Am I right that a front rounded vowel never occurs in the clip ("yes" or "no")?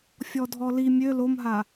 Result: no